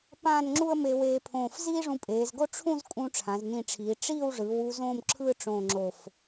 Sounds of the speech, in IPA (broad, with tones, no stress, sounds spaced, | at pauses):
p ãː˥˧ n ŋ͡ǁ u˥ ə̯ m e˧ w eː˧ pʰ õː˧˩ f z iː˥ ʐ ũ˧ pʼ eː˩˧ z ɡ o˥ ʈ͡ʂʰ ũ˥˧ z kʼ ũ˧ ʈ͡ʂʰ ã˩˧ z n ĩ˧˩ ʈ͡ʂʰ iː˩˧ ʈ͡ʂ iː˥˧ w ʐ ɯː˩˧ w u˧ z õː˥˧ m ǁʰ ɯː˥˧ ʈ͡ʂ õː˧˩ ŋ͡ǁ o˧˩ f